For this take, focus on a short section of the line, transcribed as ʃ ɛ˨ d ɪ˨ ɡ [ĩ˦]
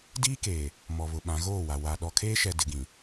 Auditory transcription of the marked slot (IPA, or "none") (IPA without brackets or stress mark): ĩ˨